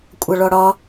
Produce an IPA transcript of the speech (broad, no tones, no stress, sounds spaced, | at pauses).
kʷʼ ʌ ɭ ɔ ɽ ɒ